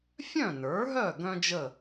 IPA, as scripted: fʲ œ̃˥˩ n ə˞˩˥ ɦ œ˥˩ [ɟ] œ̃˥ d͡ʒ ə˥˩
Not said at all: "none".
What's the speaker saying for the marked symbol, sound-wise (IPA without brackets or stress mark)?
ɡ